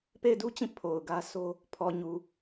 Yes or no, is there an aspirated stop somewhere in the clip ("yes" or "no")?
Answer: yes